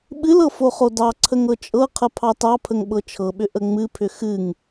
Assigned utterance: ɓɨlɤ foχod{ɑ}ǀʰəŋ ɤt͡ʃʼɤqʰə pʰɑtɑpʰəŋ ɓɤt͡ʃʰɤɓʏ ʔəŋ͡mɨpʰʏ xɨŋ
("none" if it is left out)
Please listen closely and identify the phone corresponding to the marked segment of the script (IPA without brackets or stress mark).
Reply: ɑ